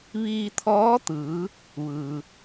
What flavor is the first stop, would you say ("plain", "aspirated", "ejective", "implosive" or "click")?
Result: aspirated